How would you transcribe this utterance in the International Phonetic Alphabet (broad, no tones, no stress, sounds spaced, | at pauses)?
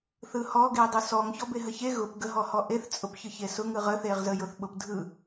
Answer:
θ ɯ h ɔ ɡ e dˤ ɯ s ɔ ŋ ç ɔ b e ɦ ə ç e ɣ ʊ p ɡ ə ɦ ɔ h ɔ ʔ e θ t͡sʼ ʊ p ç ɯ ç e s ʊ ŋ ɯ ʁ ə θ e ʁ z ə j ʊ θ ɓ ʊ p dʱ ɯ